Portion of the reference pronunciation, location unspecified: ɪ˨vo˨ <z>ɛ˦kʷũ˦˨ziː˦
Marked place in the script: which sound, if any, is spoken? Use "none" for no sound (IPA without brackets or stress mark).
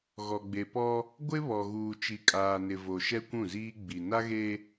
ʃ